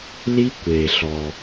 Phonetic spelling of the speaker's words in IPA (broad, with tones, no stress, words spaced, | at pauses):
li˦˥ kʷe˩ɬɔ˩